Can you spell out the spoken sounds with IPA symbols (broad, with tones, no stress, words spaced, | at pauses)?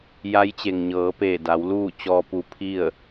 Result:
ja˧˥jt͡ɕe˩ŋɲɤː˩˧peː˧˩ da˩˧wluː˥˨ t͡ɕɔː˧pu˧pʰi˥˨ə̯